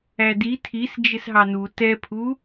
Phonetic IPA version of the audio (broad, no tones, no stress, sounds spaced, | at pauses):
æ d i tʰ i s d͡ʒ ɪ s ɦ ɑ n u t ɛ pʰ u